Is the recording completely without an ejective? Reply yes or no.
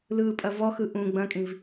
no